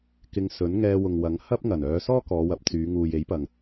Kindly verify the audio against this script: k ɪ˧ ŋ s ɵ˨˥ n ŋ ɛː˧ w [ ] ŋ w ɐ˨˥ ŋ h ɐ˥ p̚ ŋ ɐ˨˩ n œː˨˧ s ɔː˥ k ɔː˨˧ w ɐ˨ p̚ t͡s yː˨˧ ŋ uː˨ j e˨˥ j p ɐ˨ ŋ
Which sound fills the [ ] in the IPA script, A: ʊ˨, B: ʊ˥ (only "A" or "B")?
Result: A